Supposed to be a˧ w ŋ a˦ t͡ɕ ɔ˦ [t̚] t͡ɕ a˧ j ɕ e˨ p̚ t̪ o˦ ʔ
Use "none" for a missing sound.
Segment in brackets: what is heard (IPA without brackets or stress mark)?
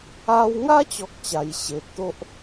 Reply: k̚